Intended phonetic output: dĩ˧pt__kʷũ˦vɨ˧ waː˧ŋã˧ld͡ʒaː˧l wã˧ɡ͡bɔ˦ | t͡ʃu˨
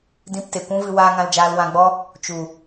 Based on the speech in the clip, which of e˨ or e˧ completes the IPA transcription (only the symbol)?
e˨